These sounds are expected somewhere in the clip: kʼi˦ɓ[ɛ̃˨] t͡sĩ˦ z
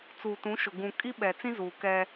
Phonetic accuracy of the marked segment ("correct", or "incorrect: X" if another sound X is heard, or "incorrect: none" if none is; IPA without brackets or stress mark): incorrect: ɛ˨